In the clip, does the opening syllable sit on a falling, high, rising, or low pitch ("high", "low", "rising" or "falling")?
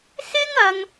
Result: high